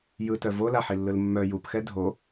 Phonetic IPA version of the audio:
j ɯ t œ v o l a ħ i lː ɯ l mː œ j u p x ɛ dʱ o

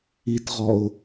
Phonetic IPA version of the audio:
i t ʁ ɔ ʊ̯

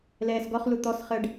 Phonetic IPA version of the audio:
l ɛː s ɡ ɔ χ l u t̪ ɔ s χ ə ɖ

